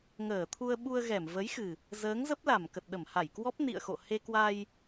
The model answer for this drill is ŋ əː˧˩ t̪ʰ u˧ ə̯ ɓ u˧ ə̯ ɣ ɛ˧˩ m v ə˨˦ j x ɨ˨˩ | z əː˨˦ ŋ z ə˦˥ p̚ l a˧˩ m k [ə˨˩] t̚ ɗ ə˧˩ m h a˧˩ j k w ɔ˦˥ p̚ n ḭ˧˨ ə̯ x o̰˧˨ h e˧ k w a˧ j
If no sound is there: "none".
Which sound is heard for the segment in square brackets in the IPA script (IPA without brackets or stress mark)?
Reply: ə˨˩